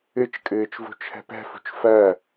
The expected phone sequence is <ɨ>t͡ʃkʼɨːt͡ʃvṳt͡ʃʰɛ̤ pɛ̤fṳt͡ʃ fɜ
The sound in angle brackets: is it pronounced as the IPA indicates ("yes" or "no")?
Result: yes